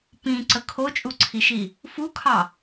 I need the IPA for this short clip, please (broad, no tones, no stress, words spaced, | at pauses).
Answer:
pĩǀə kʰot͡ʃʼuǀʰiʃi | fukʰɑ